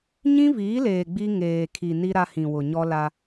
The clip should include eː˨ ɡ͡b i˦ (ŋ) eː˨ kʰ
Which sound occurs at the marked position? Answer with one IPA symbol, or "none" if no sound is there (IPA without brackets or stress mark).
ŋ